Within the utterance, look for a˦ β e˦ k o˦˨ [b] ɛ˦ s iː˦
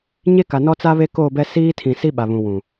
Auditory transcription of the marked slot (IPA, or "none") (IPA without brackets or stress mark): b